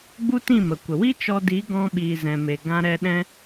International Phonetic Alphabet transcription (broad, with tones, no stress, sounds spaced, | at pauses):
ɡ͡b u˦ t ĩ˦˨ m ə˨ kʷ ə˨ w i˦ t͡ʃ ɔ˧ d i˨˦ ɡ ɔ̃˧ ɓ iː˨ z ɛ̃˨ m e˨ ɡ ã˧ ɾ ɛ˧ ɗ ɛ̃˧